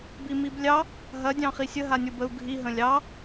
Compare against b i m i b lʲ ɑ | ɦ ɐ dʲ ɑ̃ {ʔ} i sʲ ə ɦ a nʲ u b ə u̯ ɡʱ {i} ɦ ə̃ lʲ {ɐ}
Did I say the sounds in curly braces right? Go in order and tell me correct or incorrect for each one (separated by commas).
incorrect, correct, incorrect